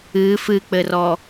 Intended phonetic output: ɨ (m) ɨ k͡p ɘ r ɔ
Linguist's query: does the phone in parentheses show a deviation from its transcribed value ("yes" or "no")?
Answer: yes